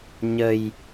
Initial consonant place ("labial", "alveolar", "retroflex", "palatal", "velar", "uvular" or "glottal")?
palatal